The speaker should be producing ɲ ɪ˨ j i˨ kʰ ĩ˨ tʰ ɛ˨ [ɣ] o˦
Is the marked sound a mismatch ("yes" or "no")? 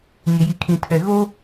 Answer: no